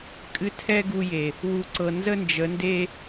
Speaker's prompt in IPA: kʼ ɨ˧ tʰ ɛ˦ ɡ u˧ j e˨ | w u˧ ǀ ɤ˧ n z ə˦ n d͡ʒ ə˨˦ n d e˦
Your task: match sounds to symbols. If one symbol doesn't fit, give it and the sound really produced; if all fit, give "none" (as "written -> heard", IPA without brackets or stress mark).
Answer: none